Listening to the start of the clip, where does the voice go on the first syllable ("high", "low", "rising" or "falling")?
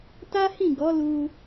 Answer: high